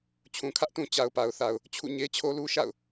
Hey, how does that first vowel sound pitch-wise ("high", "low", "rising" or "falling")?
low